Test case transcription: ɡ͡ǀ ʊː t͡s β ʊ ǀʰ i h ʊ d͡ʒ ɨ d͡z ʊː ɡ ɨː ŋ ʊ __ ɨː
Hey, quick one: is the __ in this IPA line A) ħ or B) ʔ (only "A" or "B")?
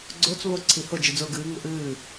B